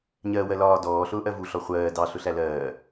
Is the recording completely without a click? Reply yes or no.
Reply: yes